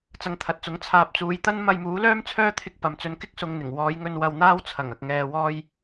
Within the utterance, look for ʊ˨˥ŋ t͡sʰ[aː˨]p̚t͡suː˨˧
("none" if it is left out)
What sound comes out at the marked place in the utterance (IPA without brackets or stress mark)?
aː˨